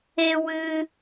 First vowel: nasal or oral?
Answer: oral